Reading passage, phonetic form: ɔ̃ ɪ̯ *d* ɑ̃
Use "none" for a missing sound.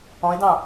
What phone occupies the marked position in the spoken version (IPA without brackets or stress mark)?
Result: d